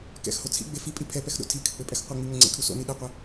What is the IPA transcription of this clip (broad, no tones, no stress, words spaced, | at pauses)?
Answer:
kɛ̰xho t͡sʰḭɡ͡be fipʼi pʰɛpɛxɗo̰ tʰikʰɘk͡pɘpʼɛx qʷɘŋ͡miŋɘ ŋ͡ǀḛkʰu so̰ni ɗeqʷɐ